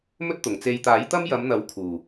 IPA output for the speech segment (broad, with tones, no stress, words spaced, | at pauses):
mɵ˥t̚t̪ʊ˨˩ŋt͡se˧j t̪aː˨˥jt̪ɐ˥mjɐ˨˧mn̪ɐ˨˥w kʰuː˨˩